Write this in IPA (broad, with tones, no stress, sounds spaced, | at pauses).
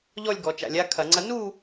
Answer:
ʎ ɔ˥˧ lʲ ɡ ɔ˩˧ t͡ʃ a̰˧˩˧ lʲ a˦˥ kʰ ɐ˧˩˧ ŋ͡ǀ ɐ˦˥ n u˥˧